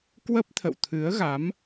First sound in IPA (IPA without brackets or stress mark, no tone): k